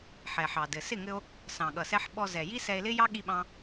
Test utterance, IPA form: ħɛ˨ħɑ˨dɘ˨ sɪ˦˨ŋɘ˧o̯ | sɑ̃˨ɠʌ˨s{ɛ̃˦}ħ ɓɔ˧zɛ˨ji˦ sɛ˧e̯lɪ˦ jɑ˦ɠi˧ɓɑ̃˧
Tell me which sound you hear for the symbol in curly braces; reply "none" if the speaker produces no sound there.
ɛ˦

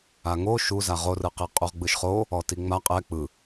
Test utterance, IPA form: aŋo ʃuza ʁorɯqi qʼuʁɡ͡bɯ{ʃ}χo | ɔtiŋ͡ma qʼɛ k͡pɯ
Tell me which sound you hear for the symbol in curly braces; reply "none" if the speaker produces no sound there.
ʃ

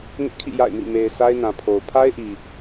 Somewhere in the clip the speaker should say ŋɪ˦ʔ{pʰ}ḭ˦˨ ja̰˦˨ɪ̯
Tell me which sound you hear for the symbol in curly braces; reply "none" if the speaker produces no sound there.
kʰ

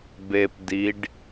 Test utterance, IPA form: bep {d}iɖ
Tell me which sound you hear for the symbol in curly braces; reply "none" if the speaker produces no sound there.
d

